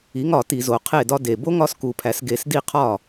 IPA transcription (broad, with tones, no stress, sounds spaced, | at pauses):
i˨˥ ŋ ɒ˧˩˧ t i˧˩˧ z o˩˧ qʰ e˥˩ d ɒ˦ d e˨˩ b o˦ ŋ ɒ˨˥ s k u˨˩ pʰ æ˩˧ s ɡ e˧˩˧ s d i˥˩ qʰ ɒ˥˩